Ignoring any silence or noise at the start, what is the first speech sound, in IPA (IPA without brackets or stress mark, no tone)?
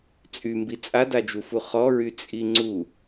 t͡sʼ